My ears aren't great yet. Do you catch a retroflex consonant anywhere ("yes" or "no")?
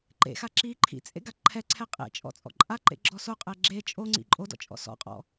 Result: no